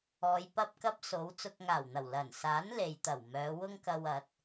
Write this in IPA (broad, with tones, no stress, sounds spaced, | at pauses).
ɔː˨˧ j p ɐ˥ p̚ k ɐ˥ p̚ s o˨˥ w t͡s ʊ˨ k̚ ŋ aː˨˩ w n̪ ɐ˨˩ w l ɐ˨˩ n s aː˨˥ n l e˨ j t̪ ɐ˨˩ w m œː˨˧ w ʊ˥ ŋ k ɐ˧ w ɐ˨˥ t̚